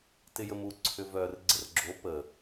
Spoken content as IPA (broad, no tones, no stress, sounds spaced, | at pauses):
t ɪ j ə m u ǀʰ ʏ v œ r ɡ͡ǀ ə r ɡ͡ǁ o p ə